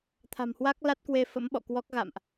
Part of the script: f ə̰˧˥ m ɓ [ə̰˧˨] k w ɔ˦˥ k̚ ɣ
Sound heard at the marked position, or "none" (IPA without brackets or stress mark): ɔ̰˧˨